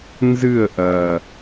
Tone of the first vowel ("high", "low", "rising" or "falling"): falling